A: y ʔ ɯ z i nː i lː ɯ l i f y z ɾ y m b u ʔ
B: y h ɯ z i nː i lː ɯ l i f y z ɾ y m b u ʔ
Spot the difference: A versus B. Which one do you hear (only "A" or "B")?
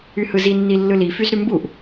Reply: B